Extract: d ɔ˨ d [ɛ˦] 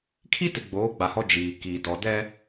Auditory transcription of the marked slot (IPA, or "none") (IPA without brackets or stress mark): ɛ˦